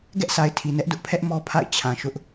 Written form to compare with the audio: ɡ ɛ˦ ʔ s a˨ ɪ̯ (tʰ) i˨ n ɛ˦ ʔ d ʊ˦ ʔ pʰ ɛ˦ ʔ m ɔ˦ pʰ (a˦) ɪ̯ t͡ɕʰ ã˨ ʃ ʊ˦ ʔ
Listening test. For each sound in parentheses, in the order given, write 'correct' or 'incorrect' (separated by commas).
correct, incorrect